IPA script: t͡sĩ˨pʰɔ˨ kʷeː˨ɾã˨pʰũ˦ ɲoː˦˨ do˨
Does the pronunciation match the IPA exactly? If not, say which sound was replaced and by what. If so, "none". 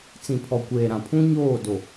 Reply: none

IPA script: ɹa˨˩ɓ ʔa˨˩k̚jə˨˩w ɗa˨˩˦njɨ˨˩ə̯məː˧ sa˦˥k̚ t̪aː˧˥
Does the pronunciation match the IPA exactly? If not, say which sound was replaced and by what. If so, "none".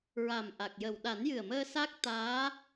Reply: ɓ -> m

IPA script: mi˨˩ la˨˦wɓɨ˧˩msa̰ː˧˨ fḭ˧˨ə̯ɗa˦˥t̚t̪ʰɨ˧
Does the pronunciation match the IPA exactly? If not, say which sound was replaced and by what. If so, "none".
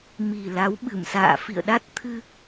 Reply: none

